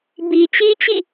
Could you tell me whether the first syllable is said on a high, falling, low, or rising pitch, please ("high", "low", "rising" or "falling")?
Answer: low